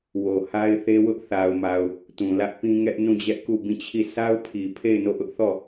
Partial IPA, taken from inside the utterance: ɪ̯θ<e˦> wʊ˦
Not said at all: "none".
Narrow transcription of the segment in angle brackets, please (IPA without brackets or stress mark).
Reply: e˦